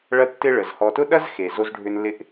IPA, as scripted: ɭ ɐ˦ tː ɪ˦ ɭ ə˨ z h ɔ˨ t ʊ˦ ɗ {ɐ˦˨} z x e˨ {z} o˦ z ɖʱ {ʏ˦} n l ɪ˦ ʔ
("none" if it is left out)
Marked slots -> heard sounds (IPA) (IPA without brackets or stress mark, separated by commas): ɐ˦, z, ʏ˦